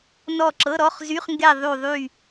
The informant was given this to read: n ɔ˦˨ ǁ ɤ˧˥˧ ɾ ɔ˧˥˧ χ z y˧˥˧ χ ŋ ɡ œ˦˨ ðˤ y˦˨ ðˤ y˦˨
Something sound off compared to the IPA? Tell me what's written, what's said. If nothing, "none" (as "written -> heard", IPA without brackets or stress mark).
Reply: œ˦˨ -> ɛ˦˨